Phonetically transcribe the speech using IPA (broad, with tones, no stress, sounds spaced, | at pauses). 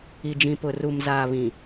i˨ d͡ʒ ĩ˨ p ʊ˨ r u˨ m z aː˨ β ĩ˨